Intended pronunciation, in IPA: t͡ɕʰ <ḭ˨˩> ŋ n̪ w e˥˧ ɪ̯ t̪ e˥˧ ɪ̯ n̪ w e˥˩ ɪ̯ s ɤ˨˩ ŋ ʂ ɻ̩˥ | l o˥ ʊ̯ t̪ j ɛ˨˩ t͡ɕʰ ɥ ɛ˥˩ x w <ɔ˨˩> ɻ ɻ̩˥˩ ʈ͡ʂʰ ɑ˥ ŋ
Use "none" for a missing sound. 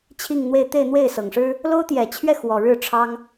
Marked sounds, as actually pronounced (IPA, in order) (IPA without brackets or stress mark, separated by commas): i˥˧, ɔ˨˩